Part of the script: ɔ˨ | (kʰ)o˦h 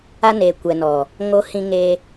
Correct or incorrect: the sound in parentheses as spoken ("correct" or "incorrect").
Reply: incorrect